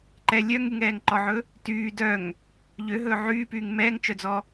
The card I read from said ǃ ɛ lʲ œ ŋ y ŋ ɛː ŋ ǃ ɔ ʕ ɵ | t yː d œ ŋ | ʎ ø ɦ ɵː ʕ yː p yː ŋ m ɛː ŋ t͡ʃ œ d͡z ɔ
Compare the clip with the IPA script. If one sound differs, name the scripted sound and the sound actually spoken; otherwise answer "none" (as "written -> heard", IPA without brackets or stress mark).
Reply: none